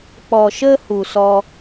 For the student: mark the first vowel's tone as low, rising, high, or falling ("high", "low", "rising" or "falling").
low